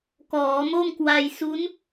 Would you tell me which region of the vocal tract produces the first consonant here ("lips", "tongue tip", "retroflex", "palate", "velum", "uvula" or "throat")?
velum